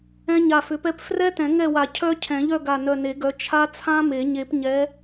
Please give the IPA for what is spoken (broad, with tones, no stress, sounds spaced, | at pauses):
ɛ̃˦˥ ɲ a˧˩ f ʏ˨˦ p ɛ˦˥ p f r ɛ˦˥ t ɛ̃˨˩˦ ŋ ɛ˥˨ w a˧˩ cʰ œ˦˥ cʰ ɛ̃˨˩˦ ʎ œ˥˨ ɡ a˧˩ n œ˧˩ n e˨˩˦ ɡ œ˨˦ t͡ʃʰ a˦˥ t͡sʰ ã˦˥ m e˨˩˦ ɲ e˨˩˦ p ɲ ɛ˨˦